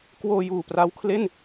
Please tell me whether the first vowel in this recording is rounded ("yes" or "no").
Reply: yes